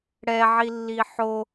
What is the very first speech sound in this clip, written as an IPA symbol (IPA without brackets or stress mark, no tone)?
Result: ɽ